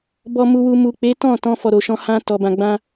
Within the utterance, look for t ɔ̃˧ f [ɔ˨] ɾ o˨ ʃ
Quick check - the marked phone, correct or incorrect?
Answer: correct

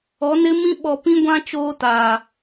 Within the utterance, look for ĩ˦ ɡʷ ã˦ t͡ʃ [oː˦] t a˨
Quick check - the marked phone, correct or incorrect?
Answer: correct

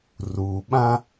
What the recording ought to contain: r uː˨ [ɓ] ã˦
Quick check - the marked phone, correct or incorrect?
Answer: correct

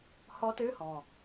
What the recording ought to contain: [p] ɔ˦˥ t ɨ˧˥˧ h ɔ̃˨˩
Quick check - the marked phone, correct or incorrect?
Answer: incorrect: h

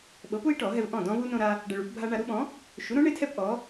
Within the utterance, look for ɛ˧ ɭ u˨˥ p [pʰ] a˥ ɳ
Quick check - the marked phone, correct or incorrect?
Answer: incorrect: bʱ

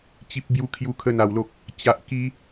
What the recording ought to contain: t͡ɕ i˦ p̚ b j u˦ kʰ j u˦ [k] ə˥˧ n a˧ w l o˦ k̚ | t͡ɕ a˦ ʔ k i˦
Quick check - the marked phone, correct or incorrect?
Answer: incorrect: kʰ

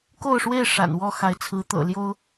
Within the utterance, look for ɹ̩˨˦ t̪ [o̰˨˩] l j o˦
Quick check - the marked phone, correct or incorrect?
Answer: incorrect: ɤ̰˨˩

